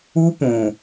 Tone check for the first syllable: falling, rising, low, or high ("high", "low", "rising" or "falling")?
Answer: high